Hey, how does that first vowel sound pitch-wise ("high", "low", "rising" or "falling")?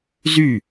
falling